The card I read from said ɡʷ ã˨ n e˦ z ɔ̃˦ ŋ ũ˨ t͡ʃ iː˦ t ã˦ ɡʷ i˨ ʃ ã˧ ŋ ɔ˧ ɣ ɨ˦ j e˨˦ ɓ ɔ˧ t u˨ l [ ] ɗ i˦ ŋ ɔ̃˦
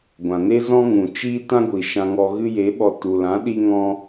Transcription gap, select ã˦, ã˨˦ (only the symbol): ã˨˦